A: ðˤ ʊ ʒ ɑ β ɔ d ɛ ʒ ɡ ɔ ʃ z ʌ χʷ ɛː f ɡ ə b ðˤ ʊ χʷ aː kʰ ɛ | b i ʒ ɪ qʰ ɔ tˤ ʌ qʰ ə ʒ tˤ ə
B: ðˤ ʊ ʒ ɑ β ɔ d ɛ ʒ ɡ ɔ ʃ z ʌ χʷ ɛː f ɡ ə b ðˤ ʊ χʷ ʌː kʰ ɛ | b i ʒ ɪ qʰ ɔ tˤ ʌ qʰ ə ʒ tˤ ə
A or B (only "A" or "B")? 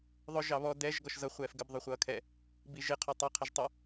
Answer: B